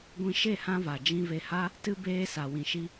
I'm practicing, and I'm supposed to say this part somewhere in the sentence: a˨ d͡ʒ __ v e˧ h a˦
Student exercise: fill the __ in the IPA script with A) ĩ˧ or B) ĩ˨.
A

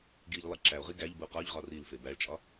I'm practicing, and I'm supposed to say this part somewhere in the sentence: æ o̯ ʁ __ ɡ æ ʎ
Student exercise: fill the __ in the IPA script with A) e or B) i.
B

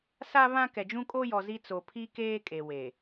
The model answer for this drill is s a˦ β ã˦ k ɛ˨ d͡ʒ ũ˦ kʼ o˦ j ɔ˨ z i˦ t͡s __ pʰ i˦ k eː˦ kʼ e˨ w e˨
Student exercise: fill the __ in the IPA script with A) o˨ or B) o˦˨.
A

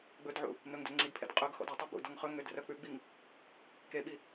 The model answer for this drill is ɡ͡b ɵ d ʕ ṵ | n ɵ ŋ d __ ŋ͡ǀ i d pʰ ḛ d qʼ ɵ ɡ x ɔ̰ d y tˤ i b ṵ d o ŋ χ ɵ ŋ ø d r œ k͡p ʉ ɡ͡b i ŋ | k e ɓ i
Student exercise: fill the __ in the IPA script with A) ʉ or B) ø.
B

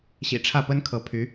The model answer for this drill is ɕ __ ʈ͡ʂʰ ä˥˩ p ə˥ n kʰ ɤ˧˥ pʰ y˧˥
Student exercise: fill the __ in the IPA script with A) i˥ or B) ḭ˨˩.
B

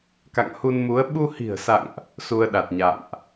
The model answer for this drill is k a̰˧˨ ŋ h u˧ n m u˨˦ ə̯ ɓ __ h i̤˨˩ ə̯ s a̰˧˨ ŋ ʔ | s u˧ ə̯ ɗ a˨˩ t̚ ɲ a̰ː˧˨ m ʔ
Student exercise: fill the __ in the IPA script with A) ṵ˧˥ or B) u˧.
B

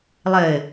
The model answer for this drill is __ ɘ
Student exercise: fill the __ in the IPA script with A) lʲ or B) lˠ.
B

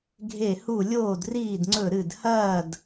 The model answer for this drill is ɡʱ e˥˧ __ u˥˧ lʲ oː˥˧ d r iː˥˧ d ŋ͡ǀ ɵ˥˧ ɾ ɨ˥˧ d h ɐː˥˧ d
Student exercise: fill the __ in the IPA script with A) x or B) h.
B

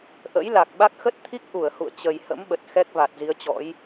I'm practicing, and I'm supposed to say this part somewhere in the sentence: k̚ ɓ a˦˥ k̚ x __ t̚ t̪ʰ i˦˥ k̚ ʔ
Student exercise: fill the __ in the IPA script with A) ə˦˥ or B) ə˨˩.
A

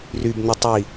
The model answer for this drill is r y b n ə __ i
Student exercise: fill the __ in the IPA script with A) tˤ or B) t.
A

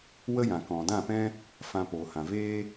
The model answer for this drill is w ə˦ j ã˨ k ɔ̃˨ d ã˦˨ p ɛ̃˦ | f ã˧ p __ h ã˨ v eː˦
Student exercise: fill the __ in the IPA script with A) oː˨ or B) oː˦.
A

